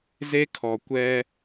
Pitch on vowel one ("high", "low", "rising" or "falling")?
high